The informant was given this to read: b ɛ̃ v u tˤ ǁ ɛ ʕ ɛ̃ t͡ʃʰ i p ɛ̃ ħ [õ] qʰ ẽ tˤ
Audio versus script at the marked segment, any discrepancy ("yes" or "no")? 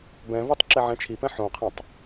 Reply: no